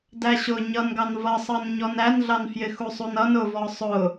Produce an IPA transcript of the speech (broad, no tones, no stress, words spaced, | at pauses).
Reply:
dæɕʊ ɲʌnɡɑn vʌsˤʌn ɲɔnænɮɑn fjɪxusˤunʌn ʊvɔ sˤʊ